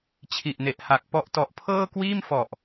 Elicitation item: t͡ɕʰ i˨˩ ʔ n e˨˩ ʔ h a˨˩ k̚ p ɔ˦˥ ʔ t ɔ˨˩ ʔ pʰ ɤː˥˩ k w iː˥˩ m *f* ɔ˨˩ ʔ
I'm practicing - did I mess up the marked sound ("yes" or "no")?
no